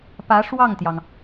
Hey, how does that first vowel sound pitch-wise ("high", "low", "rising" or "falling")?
rising